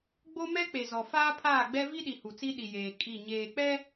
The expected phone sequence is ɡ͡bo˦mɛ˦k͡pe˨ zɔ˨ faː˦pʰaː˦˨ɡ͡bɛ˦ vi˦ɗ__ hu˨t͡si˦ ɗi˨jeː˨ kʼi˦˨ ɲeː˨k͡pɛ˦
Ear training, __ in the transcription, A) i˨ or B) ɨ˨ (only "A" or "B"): A